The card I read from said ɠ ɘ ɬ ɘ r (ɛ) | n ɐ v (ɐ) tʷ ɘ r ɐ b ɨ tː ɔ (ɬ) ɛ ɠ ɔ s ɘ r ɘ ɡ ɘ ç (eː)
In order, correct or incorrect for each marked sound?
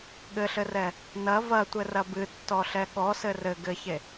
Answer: correct, correct, correct, incorrect

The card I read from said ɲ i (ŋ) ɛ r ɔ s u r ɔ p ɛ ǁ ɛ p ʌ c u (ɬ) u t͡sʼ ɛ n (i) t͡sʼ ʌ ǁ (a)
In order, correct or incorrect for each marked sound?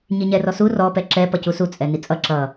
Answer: incorrect, incorrect, correct, incorrect

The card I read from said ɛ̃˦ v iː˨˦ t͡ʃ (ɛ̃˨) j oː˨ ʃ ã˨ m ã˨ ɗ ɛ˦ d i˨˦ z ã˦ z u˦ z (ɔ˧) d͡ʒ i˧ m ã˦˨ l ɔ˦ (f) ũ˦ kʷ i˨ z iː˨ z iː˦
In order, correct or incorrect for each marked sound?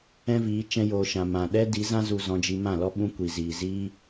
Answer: incorrect, incorrect, incorrect

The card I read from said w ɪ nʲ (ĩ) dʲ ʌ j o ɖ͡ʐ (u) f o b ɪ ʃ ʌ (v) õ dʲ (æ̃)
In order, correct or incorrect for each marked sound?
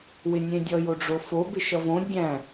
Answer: incorrect, incorrect, correct, correct

